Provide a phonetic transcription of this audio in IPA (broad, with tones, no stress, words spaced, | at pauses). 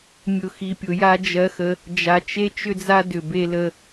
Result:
mʲʊ˨xi˨ pʲʊ˨ja˦ d͡ʒɜ˦xə˦ | d͡ʒa˨t͡ʃe˦ t͡ʃʏ˦d͡za˦ dʏ˨ be˦lə˦